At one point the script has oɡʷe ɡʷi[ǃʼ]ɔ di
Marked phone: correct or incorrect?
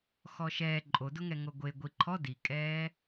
incorrect